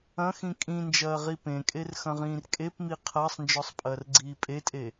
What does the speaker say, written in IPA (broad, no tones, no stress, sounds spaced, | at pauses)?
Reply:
ɐ̃ x ĩ kʼ ĩ n d͡ʒ ɐː ʁ i p ẽ kʼ e r x ɐ̃ ʁ ĩː r kʼ e p m i qʰ ɐː sˤ n d͡ʒ ɔ sˤ pʼ ɐː r ɡ͡ǀ iː pʼ e tʼ e